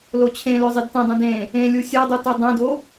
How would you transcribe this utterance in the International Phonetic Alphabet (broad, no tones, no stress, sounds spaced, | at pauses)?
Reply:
l o t͡ɕʰ ẽ l ø zˤ i d t ɛ̃ dˤ ũ d ẽ | ẽ lʲ u sʲ ɛ dˤ u t u dˤ ẽ d o